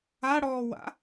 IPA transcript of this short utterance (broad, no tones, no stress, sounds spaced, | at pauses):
a ɽ ɔː w a̰